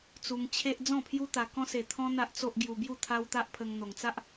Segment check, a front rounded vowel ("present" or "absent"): absent